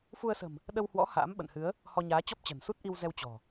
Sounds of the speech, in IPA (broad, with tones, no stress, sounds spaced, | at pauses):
f u˧ ə̯ s ə̤˨˩ m | ɗ ə˧ w h w ɔ̰˧˥ h a̰ː˧˥ m ɓ ə̰˧˨ n h ɨ˨˦ ə̯ | h ɔ˧ ɲ aː˨˦ t͡ɕ ɔ˦˥ p̚ t͡ɕ ə̤˨˩ n s u˦˥ t̚ ʔ i˧ w z ɛ˧ w t͡ɕ ɔ̤˨˩